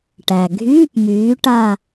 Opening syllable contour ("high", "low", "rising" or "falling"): low